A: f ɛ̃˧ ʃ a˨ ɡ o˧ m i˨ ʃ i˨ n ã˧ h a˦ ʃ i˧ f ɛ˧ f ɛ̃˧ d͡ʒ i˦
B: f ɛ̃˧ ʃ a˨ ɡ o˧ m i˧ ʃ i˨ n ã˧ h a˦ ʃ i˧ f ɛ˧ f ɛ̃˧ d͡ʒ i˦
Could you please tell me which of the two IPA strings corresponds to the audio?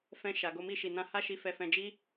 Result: B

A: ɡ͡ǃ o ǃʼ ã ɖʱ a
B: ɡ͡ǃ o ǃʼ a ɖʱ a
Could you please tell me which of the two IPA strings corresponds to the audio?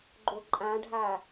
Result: A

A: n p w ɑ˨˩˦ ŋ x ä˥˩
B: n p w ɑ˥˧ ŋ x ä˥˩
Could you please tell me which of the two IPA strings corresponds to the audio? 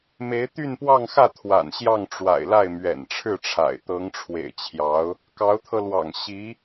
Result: B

